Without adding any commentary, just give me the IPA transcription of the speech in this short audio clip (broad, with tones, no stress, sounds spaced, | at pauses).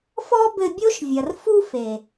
f ɔ˦ b ɘ˧ bʲ o˦ ʃ vʲ ɐ˨ r f u˦ f e˨